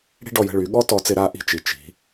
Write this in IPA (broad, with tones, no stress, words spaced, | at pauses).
ɽi̤˥ɖɔ˧jə̤˧ ɭy˩˧ɠɔ˥tɔ˧t͡sɪ˧ ɾa˥ʔi̤˥t͡ʃi˩˧ t͡ʃi̤˩˧